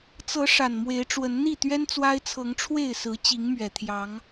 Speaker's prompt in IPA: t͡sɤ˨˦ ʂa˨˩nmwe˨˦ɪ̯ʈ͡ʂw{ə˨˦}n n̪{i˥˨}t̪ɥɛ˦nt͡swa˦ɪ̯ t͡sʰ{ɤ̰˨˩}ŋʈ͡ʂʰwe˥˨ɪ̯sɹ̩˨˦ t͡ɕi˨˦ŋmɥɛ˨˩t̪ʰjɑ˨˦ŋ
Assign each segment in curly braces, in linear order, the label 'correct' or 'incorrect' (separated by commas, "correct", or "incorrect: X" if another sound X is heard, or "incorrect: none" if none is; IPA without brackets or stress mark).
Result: correct, correct, incorrect: ɤ˨˦